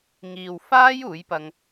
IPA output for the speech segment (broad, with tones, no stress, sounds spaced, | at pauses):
ŋ iː˨ w f aː˥ j uː˨˥ j p ɐ˧ ŋ